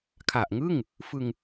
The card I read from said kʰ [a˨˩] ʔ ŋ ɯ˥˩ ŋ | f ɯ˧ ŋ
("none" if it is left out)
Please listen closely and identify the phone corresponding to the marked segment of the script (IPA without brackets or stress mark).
a˨˩